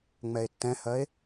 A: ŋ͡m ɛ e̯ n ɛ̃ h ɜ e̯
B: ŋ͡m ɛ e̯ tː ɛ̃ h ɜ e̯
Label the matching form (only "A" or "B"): B